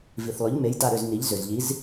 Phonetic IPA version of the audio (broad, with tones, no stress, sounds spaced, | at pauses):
v i˩ θ lˠ ʏ˩˧ ʎ m e˩˧ j d a˧˩ ɾ ʏ˧˩ z n i˩˧ ʎ z ʏ˩ z ʎ i˩˧ z